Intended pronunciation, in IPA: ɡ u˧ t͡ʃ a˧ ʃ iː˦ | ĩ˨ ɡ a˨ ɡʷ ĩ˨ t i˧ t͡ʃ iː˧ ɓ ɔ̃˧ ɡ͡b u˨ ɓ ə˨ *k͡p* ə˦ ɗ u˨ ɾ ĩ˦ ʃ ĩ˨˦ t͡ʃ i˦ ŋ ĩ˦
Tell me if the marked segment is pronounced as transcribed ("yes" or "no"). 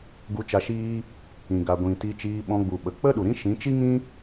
yes